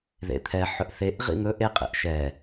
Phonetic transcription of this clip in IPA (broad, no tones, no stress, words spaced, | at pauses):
ðḛt̪ʰɛ ħɵʔθeʔ ʁḭn̪ɵʔ eqʼḛʔ ʃɛ